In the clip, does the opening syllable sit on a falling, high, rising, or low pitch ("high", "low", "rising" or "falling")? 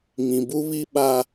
low